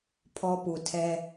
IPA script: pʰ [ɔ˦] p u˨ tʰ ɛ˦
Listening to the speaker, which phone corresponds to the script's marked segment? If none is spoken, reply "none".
ɔ˦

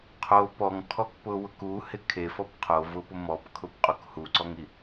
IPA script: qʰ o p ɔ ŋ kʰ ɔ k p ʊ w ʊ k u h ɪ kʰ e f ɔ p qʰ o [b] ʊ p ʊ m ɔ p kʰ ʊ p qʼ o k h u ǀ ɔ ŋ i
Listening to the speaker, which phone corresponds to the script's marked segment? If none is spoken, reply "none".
v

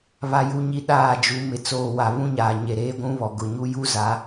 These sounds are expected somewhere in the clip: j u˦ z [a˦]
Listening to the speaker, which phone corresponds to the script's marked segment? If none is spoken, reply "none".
a˨˦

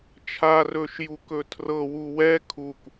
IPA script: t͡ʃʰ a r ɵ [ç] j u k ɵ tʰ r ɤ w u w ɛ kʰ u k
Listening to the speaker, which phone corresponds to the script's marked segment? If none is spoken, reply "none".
ʃ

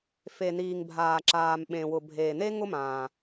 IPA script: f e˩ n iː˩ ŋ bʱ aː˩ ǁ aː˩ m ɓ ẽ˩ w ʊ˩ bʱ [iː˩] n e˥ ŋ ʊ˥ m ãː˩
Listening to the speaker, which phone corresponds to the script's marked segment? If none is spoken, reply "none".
eː˩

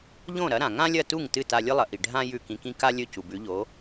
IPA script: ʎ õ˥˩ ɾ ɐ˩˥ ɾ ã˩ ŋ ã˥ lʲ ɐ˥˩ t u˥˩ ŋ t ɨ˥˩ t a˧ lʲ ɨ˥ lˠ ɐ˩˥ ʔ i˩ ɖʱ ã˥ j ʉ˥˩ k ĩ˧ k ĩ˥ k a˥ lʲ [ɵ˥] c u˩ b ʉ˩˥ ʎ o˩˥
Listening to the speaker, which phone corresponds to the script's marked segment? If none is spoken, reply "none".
ɵ˥˩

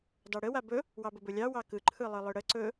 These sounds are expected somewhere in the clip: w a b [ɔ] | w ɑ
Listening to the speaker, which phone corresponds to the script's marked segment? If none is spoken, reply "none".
ɵ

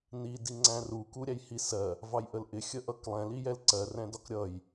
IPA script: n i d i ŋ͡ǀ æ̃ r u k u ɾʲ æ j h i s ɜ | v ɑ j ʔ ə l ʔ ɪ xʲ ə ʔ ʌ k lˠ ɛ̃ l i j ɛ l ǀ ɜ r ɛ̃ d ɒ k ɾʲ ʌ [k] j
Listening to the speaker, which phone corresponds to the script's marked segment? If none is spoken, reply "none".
none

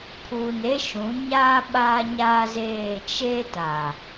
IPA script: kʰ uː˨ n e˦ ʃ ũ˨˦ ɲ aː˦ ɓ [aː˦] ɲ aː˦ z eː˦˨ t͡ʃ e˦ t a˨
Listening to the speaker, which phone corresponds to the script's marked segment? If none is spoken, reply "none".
aː˦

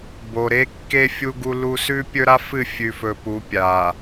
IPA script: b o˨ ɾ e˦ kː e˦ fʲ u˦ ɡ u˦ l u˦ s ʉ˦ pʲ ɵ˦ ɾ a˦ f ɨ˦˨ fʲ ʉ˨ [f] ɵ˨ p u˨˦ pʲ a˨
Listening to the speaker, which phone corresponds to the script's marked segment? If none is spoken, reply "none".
f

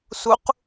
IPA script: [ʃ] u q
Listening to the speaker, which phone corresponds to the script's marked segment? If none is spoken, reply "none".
s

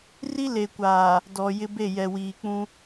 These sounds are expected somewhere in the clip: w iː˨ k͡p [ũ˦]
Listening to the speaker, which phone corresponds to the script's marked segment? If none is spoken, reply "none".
ũ˦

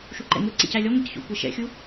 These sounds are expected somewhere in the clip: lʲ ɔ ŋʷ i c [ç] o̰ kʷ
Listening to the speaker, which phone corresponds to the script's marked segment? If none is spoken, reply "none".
ç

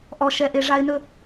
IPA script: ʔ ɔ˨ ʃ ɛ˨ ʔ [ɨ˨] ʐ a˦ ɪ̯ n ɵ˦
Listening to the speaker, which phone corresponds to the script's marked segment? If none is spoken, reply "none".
e˨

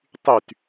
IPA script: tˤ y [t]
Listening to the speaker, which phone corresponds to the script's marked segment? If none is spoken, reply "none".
t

